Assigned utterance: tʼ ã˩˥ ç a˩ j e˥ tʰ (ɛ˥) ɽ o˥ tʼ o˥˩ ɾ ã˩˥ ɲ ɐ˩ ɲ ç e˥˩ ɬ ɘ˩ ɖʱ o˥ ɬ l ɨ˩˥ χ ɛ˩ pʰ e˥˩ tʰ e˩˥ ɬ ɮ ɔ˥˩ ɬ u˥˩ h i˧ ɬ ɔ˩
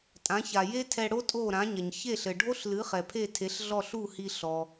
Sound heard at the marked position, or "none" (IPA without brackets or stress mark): ɛ˧